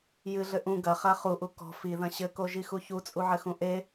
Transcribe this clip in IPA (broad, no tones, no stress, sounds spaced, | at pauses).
j ɨ ɮ ɘ ʔ ũ ɡ ɐ χ a χ u ʔ u k ɔ̤ f i ð ɐ̃ ɕ ɘ k o ʒ i x u ç u t͡sʼ u ʕ ɘ x ũ ʔ e